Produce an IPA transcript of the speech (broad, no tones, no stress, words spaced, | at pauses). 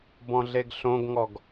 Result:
bɔ̃ɮeɡɬõɡŋɔɡ